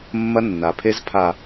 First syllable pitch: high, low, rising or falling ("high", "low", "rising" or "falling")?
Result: high